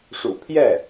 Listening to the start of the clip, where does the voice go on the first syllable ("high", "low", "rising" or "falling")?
low